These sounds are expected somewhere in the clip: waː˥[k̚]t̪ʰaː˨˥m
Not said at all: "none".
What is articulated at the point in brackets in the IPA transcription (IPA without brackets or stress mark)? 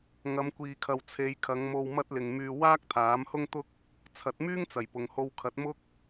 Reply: k̚